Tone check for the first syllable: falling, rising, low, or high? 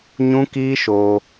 high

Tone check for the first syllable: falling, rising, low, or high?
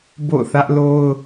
falling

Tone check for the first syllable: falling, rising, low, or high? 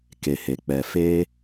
low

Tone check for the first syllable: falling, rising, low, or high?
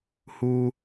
high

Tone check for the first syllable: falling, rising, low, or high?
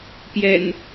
low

